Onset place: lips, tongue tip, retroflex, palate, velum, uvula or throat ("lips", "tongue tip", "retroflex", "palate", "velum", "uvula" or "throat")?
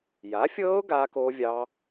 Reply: palate